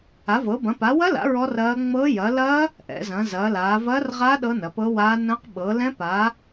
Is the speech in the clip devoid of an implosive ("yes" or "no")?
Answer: no